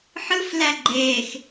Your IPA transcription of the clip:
ħ ɯ f l æ ɡ͡ǃ eː x

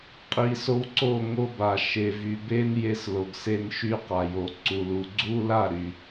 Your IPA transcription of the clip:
qʼ i˧ s o˦ w ǀ o˦˨ ŋ o˧ b a˨ ʃ e˨ v y˨ b e˦ n j e˧ s l o˨ ɡ s e˧ n ʃ y˧ q a˨ j o˨ ǀ u˨ l u˨ ɡ͡ǀ u˦ l a˦˨ ɾ y˨

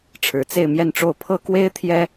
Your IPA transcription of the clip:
ʈ͡ʂʰ ɻ̩˧˥ t͡s e˥˧ ɪ̯ m j ɛ˥˧ n ʈ͡ʂ o˥˩ ʊ̯ pʰ ɤ˥ k w e˥ ɪ̯ t̪ʰ j ɛ˥

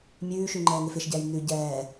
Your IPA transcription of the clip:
mʲ ʉː ʃ ʉ ŋ͡ǃ ɛː ŋ ɪ f ɪ ʃ ɟ ɛː j n ʉ ɟ ɛː

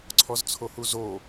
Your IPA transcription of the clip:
ǀʰ ɔ z t͡sʰ o h u z o

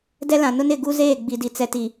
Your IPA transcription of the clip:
d ɛ˦ l ã˨ n ʊ˦ n ɪ˦˨ ɡ u˦ z eː˦˨ ɡ͡b i˨ d i˨ t͡s ɛ˨ t i˨

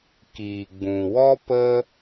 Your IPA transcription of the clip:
k iː˨ ɡ͡b ũ˨ w ɔ˦ p ə˦

